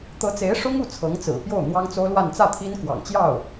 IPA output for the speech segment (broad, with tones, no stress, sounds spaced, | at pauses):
t̪ ɤ˧˥ t͡s e˧˥ ɪ̯ ʂ ʊ˥ ŋ u˥˩ t͡sʰ ɤ˧˥ ŋ t͡s ɹ̩˨˩ p j o˥˩ ʊ̯ n̪ w ɑ˥ ŋ t͡s o˥ ʊ̯ l w a˥˧ n t͡s ä˥˩ t̪ʰ i˥ n k w ɑ̰˨˩ ŋ t͡ɕ j ɑ˥˩ ʊ̯